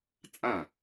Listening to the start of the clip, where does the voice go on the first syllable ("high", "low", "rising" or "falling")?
falling